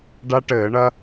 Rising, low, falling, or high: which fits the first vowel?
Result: high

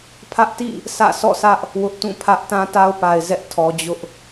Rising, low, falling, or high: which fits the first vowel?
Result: high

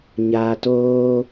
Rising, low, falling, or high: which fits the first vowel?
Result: low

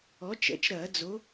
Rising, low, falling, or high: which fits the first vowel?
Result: rising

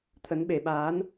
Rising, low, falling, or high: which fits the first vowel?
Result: rising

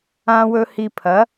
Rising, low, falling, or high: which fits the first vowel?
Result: high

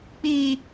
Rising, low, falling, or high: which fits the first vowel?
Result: high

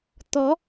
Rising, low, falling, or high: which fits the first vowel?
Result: rising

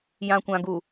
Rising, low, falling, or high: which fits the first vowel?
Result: low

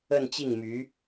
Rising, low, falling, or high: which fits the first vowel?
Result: falling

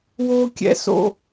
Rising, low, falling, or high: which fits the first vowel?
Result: high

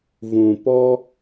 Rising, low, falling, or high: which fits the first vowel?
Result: low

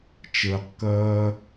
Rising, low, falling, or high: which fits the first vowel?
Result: low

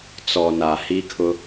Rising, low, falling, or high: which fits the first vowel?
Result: low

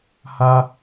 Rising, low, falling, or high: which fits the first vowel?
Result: low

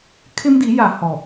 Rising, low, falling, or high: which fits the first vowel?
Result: high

